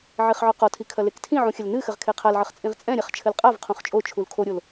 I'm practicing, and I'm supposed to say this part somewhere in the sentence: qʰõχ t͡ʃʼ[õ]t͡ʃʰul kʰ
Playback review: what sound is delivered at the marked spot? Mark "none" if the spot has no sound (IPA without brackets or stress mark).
o